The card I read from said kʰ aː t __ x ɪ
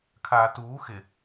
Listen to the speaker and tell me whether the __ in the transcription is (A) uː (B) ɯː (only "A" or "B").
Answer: A